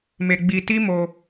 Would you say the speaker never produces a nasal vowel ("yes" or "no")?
yes